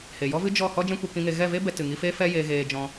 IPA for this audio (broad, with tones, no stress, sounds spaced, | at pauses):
h e˨ j ɔ˦ v ɨ˦ d͡ʒ ɔ˦˨ h ɔ˦ d͡ʒ ɛ̃˦ kʷ ɛ˧ k ĩ˧ ŋ e˧ ɣ ɛ˦˨ v e˦ b ɛ˧ t ɨ˨ ŋ i˧ f eː˦ f ɛ˦ j e˧ ɣ eː˧ d͡ʒ ɔ̃˧